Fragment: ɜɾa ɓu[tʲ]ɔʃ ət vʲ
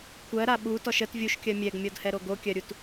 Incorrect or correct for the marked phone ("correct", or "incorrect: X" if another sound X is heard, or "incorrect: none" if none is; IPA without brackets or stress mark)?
incorrect: t